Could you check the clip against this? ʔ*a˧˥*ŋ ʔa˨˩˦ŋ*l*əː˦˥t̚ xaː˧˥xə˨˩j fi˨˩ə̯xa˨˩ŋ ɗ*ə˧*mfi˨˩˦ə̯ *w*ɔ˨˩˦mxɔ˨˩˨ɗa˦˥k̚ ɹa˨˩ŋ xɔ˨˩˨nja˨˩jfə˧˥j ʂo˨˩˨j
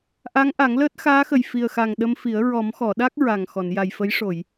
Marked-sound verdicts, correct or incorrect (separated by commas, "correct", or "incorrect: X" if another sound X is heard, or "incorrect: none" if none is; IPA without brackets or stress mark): correct, correct, correct, incorrect: ɹ